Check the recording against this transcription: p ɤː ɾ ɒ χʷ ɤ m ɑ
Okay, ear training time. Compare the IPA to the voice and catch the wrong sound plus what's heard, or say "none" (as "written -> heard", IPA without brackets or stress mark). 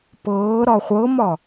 ɑ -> ɒ